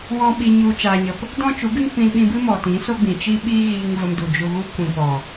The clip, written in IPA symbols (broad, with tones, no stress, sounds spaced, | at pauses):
w ɔ̃˧ ɓ i˧ ɲ u˧ t͡ʃ aː˧ ɲ ə˧ p | d ɔ̃˦ t͡ʃ u˨˦ ɡ ɨ˦ ŋ p ĩ˧ l ɓ ĩ˧ b ɨ˦ m ɔ˨ t ĩ˨˦ s o˦ ɡ͡b ĩ˨ t͡ʃ i˦ ɓ iː˦ ɣ iː˧ ŋ v ə˧ m d u˨ d͡ʒ u˧ ɣ u˦ kʷ ĩ˨ p ɔ˨